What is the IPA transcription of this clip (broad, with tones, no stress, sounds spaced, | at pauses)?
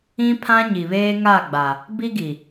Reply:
ĩ˦ pʰ ã˦ ɲ i˨ β eː˦ ŋ a˦˨ ɡ͡b a˨ | b i˦ ɡ i˨